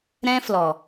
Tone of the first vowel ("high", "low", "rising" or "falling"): high